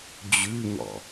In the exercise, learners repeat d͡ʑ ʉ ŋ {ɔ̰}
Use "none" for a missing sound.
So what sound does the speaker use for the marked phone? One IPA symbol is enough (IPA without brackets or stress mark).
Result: ɔ̰